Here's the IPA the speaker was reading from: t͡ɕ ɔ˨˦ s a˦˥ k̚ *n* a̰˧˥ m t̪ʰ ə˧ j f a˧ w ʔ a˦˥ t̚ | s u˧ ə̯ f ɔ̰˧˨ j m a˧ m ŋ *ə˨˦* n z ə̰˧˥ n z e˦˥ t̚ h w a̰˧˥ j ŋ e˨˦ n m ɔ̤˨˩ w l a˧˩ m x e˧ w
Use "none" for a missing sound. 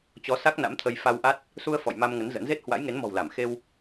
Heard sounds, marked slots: n, ə˨˦

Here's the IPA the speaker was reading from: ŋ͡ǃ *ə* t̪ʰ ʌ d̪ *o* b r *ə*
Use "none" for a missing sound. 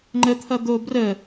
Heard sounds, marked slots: ə, o, ə

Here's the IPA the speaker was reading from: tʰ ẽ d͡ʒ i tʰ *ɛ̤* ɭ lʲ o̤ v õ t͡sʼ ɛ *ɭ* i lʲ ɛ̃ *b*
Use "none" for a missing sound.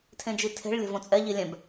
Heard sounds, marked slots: e̤, ʎ, b

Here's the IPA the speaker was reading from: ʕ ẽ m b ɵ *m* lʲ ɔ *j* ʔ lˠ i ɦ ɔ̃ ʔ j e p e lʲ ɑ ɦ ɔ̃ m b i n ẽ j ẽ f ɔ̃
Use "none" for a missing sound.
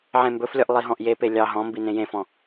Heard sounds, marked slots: f, none

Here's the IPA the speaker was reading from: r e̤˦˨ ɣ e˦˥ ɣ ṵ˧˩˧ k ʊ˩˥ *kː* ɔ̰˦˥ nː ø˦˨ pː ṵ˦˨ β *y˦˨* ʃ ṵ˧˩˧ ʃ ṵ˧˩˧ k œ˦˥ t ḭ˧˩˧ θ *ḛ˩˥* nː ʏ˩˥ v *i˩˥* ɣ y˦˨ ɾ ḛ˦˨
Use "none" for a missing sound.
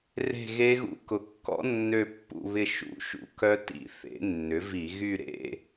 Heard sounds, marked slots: kː, ɪ˦˨, ḛ˩˥, i˧˩˧

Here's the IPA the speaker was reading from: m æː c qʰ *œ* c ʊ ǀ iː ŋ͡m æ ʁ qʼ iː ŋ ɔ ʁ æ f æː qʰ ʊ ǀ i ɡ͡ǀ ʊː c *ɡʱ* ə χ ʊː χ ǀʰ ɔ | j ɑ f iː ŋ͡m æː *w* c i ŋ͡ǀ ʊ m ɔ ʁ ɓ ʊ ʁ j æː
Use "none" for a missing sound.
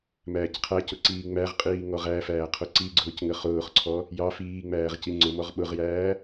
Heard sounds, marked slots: æ, ŋ, ʁ

